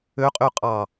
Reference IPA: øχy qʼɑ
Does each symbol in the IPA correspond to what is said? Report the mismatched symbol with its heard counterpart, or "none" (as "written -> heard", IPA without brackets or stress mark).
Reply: χ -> qʼ